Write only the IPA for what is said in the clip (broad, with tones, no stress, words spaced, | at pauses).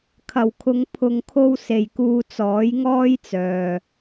kʰɐ˨˩wkʰʊ˨˧ŋ pʰʊ˨ŋkʰo˧w se˨jkuː˧ t͡sɔː˨˥jŋɔː˥jt͡sœː˨